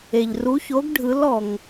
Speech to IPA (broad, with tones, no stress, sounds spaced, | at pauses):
e˩ ʎ r u˨˥ ç o˨˥ ɡ ɖʱ ɯ˨˥ l ɔ˩ ŋ